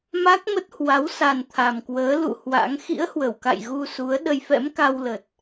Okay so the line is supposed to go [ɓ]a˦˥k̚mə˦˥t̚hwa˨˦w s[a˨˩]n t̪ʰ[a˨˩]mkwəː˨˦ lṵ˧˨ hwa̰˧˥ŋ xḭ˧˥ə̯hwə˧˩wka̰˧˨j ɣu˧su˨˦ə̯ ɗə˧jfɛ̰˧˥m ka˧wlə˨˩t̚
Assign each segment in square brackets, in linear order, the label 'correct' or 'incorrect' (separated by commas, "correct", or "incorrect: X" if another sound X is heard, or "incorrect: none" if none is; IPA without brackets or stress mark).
incorrect: m, correct, correct